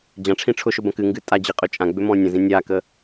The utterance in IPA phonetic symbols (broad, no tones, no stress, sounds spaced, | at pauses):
d͡ʑ ã ʈ͡ʂʰ ĩ ʈ͡ʂʰ ʊ ʃ ʊ b ɐ̃ k ɨ ŋ ɡ ɨ tʼ a d͡ʑ i qʼ ʏ t͡ʃʼ ã ɡ͡b ʏ m ɔ̃ nʲ ə̃ z ĩ nʲ a k ə